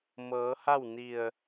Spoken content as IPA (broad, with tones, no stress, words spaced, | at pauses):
mɤː˩˧ha˥˨wni˧˩ə̯